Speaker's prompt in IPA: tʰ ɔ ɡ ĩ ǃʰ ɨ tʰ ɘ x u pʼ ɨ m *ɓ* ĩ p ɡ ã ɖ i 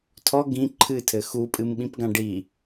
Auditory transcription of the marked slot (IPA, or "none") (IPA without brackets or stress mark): ɓ